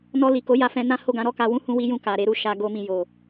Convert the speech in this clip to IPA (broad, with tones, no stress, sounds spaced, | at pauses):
n ɔ˧ l i˨ k o˨˦ j a˧ f ɛ̃˧ n ã˦ h o˦˨ ɡ ã˨˦ ɾ ɔ˦˨ k a˧ w ũ˦ h ũ˦ w i˦ j ũ˦˨ k a˨ ɾ e˧ ɾ u˧ ʃ a˧ ɡ o˧ m ĩ˨ j o˨